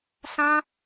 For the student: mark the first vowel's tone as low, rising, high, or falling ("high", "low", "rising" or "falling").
high